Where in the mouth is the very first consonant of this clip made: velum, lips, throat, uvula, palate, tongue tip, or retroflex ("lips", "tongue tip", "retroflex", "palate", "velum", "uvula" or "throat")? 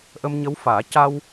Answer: throat